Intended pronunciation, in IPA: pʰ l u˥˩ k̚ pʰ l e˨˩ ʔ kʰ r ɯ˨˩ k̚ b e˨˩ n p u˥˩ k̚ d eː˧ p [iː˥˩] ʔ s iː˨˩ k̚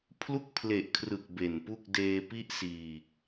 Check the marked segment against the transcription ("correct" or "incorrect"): incorrect